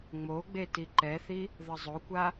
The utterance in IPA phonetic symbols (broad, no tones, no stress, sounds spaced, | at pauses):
ŋ͡m o ɡ͡b e t i ǃ ɛ θ i | ð ʌ zˤ o kʷ a